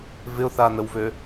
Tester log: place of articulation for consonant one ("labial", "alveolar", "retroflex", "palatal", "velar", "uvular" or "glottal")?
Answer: labial